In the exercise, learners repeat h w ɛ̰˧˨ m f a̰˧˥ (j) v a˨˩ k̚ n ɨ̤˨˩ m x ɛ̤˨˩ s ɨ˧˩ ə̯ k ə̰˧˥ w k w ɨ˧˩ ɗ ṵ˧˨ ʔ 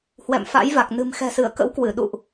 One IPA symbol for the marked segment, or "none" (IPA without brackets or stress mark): j